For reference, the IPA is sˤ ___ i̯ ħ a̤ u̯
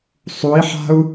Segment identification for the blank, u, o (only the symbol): u